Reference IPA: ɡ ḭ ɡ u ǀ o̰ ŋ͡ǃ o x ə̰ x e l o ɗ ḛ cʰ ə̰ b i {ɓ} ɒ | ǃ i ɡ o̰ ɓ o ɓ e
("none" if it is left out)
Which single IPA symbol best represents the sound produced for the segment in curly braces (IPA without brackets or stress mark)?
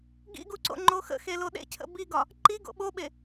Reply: ɡ